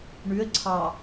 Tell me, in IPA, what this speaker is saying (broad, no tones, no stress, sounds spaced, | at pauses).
ɳ ʉ ə̯ ǀʰ ɑ